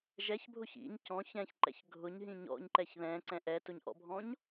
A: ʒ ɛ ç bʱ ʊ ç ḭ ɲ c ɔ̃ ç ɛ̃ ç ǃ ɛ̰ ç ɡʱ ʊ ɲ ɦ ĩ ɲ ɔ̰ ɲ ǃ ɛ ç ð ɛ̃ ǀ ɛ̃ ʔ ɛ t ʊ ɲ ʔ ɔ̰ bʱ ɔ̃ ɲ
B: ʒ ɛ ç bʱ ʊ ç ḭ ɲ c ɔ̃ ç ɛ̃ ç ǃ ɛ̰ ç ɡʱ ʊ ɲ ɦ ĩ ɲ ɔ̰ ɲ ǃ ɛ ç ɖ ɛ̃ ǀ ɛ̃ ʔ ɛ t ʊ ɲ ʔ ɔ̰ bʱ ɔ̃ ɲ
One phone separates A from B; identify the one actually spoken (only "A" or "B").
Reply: A